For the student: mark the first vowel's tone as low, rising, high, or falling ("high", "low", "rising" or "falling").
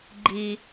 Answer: low